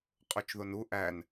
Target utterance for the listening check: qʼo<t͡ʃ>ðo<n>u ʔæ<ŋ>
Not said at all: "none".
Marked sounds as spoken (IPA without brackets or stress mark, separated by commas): t͡ʃ, n, n